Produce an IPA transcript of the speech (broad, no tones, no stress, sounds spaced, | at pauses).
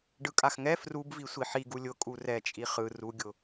ɖ ɯ kʼ a x ŋ ɛ f r u b v i sʷ i ħ i ɡ u lʲ ʊ kʼ u r ɛ t͡ʃʼ i χ ɯ r u ɡʲ ʊ